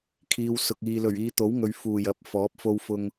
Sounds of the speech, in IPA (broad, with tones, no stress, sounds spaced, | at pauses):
kʰ iː˨ w s ʊ˨ k̚ iː˨ l ɵ˨˩ ɥ iː˨˧ t̪ o˨˥ w ŋ ɵ˨ ɥ f uː˨˩ j ɐ˨˥ p̚ f ɔː˨˥ p̚ f o˧ w f ʊ˧ ŋ